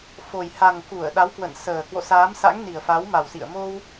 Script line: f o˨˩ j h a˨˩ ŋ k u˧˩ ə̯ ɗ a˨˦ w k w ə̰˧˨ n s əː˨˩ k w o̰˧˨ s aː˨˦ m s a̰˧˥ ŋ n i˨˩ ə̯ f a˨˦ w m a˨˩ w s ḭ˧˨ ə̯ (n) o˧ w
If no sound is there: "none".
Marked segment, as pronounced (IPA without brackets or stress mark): m